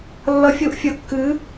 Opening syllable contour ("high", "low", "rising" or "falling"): rising